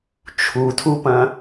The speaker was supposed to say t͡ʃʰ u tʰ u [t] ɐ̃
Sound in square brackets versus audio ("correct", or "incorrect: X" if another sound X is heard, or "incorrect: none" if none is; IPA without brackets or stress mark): incorrect: p